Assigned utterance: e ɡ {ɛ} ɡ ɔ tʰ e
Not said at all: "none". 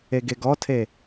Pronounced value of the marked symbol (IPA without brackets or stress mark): e